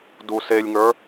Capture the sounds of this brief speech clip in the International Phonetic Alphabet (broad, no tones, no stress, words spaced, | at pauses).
duselʲŋə˞